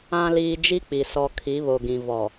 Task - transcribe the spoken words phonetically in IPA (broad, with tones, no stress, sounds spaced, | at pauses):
ã˨ l iː˨ d͡ʒ i˦ k͡p i˨ s ɔ˨ kʰ i˨˦ β o˨ ɡ ĩ˨ v ɔ˨